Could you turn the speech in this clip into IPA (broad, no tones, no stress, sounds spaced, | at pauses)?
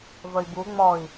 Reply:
v ə i̯ b u ŋ͡m ɔ i̯